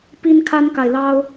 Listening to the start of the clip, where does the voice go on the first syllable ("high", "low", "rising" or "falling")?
high